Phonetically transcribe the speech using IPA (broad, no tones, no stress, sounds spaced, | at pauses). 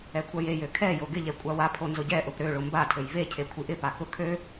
ɛ kʷʰ a j e j ø kʰ ɛ j o ɡ ɪ ʎ ɛ kʷʼ a w a pʰ o n z ʊ ɟ ɛ ʔ ʊ p ɾ ø ɭ ʊ m b a tʰ ø j v e cʰ e kʷʰ i ʔ ɪ p a k ʊ kʰ ø